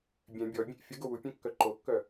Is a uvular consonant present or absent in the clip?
absent